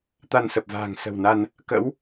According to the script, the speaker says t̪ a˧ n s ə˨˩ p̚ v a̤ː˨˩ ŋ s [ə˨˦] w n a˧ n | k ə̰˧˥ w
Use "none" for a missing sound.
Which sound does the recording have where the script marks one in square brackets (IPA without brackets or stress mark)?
ə̤˨˩